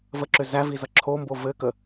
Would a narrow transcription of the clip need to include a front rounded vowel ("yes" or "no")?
yes